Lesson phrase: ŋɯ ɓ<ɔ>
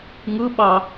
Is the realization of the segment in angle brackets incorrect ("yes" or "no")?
yes